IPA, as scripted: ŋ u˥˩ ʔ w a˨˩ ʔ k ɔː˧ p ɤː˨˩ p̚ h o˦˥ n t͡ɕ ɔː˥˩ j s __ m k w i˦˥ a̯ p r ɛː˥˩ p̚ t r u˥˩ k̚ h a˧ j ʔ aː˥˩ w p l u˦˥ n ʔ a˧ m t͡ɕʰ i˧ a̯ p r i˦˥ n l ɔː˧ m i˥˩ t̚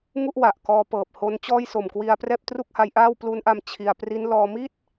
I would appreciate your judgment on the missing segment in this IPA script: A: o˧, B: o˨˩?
B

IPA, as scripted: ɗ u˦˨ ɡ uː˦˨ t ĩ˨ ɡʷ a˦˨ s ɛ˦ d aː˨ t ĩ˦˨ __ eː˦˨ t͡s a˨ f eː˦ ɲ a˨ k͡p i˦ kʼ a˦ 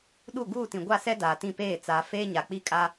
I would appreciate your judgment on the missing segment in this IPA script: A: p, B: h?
A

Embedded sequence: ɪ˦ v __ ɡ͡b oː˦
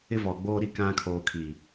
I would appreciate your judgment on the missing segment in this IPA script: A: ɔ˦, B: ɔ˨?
B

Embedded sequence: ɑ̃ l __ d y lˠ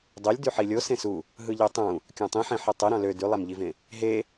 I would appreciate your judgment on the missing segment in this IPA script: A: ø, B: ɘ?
A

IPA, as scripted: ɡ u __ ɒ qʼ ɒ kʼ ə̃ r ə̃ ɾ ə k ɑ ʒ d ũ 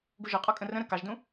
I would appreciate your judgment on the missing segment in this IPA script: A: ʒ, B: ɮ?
A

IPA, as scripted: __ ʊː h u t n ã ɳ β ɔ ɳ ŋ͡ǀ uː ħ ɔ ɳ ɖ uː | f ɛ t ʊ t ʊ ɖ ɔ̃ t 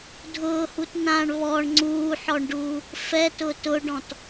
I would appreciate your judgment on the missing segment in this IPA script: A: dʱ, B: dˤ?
A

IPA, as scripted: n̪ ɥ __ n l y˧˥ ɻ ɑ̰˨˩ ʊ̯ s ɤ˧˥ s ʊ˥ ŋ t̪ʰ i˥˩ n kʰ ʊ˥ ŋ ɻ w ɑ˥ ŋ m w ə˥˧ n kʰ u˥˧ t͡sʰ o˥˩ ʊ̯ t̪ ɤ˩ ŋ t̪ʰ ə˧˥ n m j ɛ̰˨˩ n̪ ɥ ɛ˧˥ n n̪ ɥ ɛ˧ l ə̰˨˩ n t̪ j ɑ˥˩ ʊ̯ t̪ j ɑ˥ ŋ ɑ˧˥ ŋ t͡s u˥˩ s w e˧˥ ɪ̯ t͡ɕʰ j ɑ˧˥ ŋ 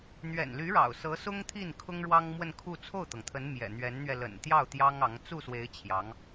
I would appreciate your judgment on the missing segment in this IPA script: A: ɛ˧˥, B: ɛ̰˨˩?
B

